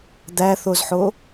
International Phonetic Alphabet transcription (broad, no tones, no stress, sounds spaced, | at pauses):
d̪ æ θ o z ħ o